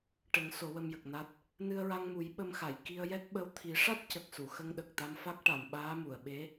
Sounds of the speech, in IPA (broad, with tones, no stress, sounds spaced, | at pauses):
ʈ ə˨˩˦ ŋ s o˨˩˦ w ə˧ m j ə˨˩ k̚ n a˦˥ t̚ | n ɨ˧ ə̯ ɹ a˧ ŋ m u˨˩˦ j ɓ ə˧ m x a˨˩˨ j k i˧ ə̯ j ɛ˦˥ k̚ ɓ ə˧ w t̪ʰ i˨˩˦ ʂ a˦˥ t̚ c ə˨˩ k̚ s u˨˩˨ x ə˧ ŋ ɗ ə˨˩ k̚ t̪ a˧ m f a˦˥ k̚ ʈ a˨˩˨ m ɓ aː˧˥ m u˨˩˨ ə̯ ɓ e˧˥